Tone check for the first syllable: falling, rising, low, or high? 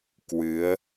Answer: rising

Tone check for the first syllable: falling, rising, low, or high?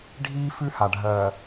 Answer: high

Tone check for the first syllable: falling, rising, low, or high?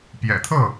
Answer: low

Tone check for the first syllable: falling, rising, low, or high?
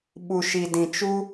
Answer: low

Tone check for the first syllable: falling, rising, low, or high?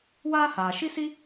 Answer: high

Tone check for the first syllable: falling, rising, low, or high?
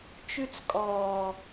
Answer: high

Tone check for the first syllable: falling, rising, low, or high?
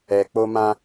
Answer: low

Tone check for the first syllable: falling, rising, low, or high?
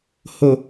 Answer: low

